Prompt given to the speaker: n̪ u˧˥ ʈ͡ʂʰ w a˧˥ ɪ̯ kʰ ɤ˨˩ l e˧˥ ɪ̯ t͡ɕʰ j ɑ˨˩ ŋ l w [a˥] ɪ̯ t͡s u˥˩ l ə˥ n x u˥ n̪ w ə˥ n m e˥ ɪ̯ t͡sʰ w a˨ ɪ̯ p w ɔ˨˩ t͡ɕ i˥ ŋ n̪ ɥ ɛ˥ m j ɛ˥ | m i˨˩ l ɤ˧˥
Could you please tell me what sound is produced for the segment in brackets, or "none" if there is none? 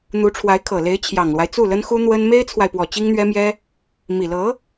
a˦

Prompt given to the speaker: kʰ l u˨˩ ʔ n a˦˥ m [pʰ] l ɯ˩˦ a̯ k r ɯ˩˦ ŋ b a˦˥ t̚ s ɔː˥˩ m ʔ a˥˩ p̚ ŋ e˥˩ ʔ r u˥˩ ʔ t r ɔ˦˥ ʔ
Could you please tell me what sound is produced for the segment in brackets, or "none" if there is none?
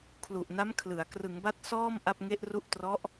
kʰ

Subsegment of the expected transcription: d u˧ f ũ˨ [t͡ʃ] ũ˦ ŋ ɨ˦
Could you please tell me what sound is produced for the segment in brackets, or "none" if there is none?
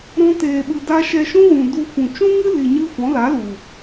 t͡ʃ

